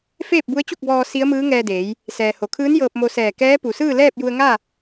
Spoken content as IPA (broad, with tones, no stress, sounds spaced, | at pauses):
f eː˥˨ p̚ b u˧˥ ə̯ t͡ɕ u˥˨ k̚ b ɔː˧ s i˧˥ ə̯ m ɯː˧˥ ŋ ɛː˧ d eː˩˧ j | s ɛː˩ h o˩ kʰ ɯː˧˥ n j ɤː˧ p̚ m o˧ s ɛː˧˩ k ɛː˧˥ p u˩ s ɯː˥˨ l ɛː˥˨ p̚ j u˧ ə̯ ŋ a˥˨